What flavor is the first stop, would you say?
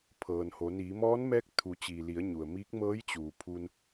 aspirated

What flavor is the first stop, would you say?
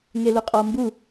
ejective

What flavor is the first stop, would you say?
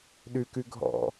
implosive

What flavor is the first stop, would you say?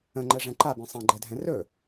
click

